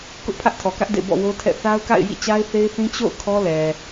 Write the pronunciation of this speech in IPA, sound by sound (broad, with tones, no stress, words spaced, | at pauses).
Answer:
kʊ˦ʔpʰä˦ʔtʰɔ˨kä˦ʔ dḛ˦˨bɔ̰˦˨wo˦tʰɛ̰˦˨ θa˦ʊ̯ka̰˦˨ɪ̯ jḭ˦˨t͡ɕa˦ɪ̯θe˦ɪ̯θĩ˦ t͡ɕo̰˦˨ʊ̯ kʰɔ˦lɛ˨